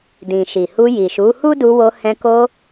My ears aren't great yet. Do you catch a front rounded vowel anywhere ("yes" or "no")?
no